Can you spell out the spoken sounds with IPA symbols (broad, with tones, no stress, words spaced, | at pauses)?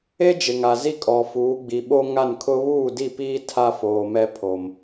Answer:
e˦ d͡ʒɪ˨ŋa˨zi˦kʼɔ˨ fuː˨˦ɡ͡bi˨ ɓo˦ŋa˦˨nkʰʊ˦ βuː˦˨di˦˨piː˦ tʰa˦foː˨ mɛ˦pʰo˨m